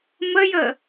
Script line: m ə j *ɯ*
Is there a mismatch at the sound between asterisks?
yes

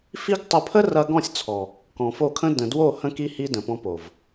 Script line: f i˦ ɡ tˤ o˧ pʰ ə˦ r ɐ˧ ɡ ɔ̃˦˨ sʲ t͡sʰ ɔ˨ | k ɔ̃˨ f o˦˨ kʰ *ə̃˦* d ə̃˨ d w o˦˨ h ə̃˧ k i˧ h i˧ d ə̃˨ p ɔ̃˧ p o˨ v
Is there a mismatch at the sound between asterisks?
no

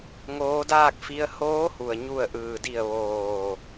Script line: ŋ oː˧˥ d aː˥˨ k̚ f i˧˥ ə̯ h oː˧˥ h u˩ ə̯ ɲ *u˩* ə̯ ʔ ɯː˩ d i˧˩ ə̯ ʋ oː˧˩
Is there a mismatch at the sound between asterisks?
yes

